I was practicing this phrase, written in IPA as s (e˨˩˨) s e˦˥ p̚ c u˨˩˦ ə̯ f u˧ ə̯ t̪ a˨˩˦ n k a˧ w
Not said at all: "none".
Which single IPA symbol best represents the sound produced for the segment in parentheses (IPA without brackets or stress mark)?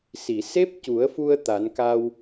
i˨˩˨